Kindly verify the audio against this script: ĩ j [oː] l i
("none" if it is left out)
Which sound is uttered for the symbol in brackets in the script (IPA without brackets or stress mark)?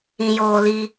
oː